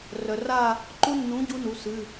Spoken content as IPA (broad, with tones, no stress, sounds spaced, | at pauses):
r œ˩ r a˦˨ | ǃ u˦˥ nː ũ˨˥ ɟ u˦˥ n u˩˧ s ɨ˩˧˩